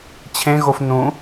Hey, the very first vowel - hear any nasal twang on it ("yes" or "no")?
yes